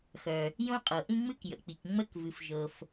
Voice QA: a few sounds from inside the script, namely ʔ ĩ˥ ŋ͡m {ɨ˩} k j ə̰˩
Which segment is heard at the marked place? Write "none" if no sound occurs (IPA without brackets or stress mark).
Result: ɨ˥